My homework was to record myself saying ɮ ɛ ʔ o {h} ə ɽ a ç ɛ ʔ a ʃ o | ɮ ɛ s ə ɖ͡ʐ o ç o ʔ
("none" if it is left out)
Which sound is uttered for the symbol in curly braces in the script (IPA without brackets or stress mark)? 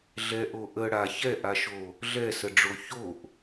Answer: ʔ